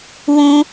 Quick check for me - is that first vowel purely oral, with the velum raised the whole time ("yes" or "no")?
no